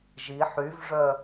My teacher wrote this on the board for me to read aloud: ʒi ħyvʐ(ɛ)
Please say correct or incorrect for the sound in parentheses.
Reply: incorrect